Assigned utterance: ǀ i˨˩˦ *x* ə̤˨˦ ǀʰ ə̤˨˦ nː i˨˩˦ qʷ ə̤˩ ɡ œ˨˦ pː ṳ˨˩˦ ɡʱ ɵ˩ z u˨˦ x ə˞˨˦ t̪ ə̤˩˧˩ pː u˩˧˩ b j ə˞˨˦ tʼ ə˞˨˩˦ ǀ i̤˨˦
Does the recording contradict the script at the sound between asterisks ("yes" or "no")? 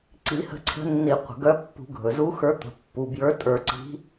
yes